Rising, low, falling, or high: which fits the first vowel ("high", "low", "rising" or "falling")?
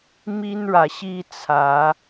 high